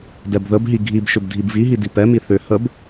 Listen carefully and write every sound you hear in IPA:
dɛbðəbɦi ɡʱibʃʏb dʱibviɦi dipɛmi θʏ həb

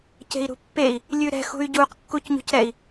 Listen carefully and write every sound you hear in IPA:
ce̤i̯ɾṳpːei̯ | lʲʉɾɛ̤ xṳy̯ɟuq kːucɲṳcɾɛi̯

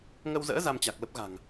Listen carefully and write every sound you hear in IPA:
ŋə˧wzə̰ː˧˥ za˧mt͡ɕa˨˩k̚lə˦˥p̚ ɣa̤˨˩ŋ

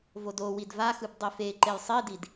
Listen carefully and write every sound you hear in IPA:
vodo widvaxɯb dˤife ǃejsˤidid

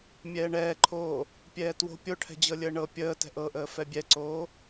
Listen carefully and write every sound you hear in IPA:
mʲɛːɳɛːǃʰoː | pʲɛːtwo̤ pʲo ʈʰɛ̤d͡ʑɤlʲəːɳɤ pʲəː tɛ̤ʔɤʔəː fɛbʲɛǀoː

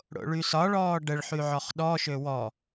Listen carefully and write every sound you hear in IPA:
ɽo̰ɭysɒɭɔː ɖəɭħy ʕɔχɗɔʃø wɔ

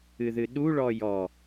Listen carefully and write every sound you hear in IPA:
ɨðɨɗu ɭɔjɔ

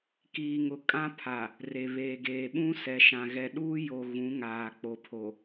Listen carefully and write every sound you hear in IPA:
kiː˨ŋʊ˨ kʼã˦pʰa˨ | re˨βeː˨ ɡeː˨ɓũ˦sɛ˨ʃã˨ ɣɛ˨ɗuː˦jo˨ ɣũ˨˦ŋaː˨k͡po˨pʰo˨

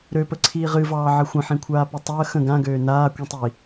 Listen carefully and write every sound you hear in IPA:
ɾøpəǀʰiːʁ ɨvɑːʕə xʷə̃ħĩkʷʰaːpɨ tˤəː xə̃ ɡãɡøː naːkʷĩtˤi

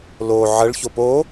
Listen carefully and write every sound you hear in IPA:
lo ʕəɭço po

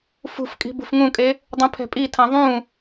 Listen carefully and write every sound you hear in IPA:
fṳf kʼi̤bṳfŋũkʼe | dˤũpʰɛ̤pʼitʰã ðˤũ

